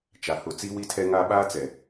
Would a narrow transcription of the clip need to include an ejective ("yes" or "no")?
no